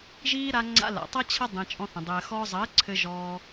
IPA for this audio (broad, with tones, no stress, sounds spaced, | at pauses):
ʒ iː˦ ɾ a˧ ŋ͡ǀ a̰˧ l a̰˨ tˤ ɐ˦ t͡ɕʰ ɐ˦ dˤ ĩ˧ t͡ʃʼ ɔ̃˦ θ ə̃˧ dˤ ɘː˧ x ɔː˧ zˤ ɘː˨˦ ǀʰ ɘ˧ ʒ ɔː˦